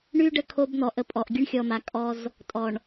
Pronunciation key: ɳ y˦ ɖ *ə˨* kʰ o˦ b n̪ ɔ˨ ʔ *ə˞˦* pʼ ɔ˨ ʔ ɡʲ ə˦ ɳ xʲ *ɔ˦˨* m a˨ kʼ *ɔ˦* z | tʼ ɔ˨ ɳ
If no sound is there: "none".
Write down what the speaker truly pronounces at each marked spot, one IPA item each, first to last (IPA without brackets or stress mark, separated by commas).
ə˦, ə˦, ɔ˨, ɔ˦